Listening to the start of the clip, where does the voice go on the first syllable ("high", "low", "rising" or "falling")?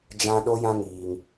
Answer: high